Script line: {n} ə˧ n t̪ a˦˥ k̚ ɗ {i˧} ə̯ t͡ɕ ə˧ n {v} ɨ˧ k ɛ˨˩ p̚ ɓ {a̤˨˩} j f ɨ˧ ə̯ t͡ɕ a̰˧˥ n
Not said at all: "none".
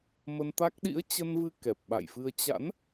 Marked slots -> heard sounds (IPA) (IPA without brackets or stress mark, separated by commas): m, ḭ˧˥, v, a̰˧˨